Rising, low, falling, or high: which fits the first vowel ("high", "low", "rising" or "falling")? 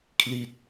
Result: falling